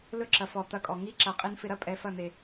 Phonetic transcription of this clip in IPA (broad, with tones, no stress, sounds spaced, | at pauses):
l ɵ˦ ǁ ɐ˨ f ɔ˨ t̪ ɐ˧ kʼ ɔ˨ ŋ i˦ ǁ ɐ˨ qʼ i˧ n f ɪ˧ ɾ ɐ˦ pʼ ɛ˧ f ɐ˦˨ n̪ e˨